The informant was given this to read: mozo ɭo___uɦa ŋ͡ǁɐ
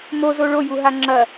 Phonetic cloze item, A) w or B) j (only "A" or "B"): B